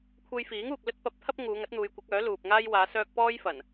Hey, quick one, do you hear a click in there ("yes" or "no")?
no